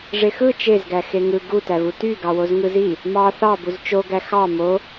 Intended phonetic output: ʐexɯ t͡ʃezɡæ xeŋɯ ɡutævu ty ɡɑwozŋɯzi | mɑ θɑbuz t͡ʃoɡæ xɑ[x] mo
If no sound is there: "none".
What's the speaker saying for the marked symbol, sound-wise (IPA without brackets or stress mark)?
none